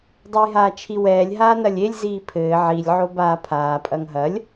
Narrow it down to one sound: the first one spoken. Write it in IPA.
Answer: dˤ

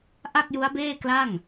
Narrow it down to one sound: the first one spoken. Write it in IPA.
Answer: ʔ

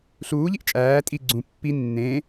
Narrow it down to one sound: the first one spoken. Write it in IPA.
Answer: ɬ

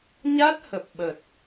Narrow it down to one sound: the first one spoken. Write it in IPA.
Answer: ɲ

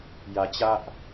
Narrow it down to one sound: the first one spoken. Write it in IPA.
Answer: j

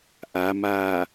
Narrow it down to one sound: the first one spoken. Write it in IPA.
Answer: ʔ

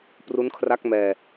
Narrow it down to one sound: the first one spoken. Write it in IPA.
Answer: p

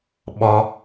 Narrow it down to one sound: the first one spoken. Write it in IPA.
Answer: ɓ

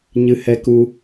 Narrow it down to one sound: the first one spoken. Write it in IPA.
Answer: ɲ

